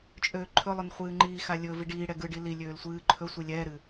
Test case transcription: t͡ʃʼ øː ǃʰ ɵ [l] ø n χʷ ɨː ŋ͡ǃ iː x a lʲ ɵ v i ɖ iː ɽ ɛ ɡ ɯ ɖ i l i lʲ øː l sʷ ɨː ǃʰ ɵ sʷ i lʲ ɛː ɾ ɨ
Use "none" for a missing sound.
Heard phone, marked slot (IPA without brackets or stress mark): lˠ